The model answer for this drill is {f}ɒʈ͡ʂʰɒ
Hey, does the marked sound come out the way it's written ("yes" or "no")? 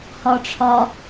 no